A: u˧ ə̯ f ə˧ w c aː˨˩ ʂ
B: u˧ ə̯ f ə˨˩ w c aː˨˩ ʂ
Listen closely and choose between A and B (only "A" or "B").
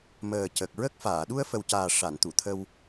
B